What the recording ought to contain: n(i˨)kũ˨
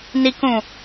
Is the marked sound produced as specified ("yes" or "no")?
yes